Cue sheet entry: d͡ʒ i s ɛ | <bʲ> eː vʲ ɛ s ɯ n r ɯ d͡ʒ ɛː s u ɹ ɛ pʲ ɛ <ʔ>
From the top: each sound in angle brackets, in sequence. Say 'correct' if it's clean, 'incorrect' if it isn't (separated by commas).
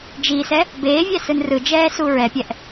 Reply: incorrect, correct